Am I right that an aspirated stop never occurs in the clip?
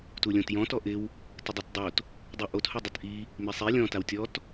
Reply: yes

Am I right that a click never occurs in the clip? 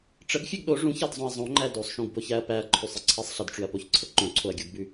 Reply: no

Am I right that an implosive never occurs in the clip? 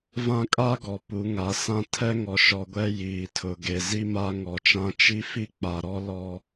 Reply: yes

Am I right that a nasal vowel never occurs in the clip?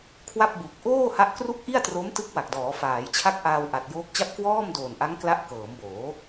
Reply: yes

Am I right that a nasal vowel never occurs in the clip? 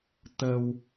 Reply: yes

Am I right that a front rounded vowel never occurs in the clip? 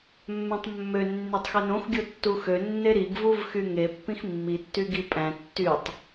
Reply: no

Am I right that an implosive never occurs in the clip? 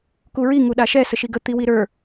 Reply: no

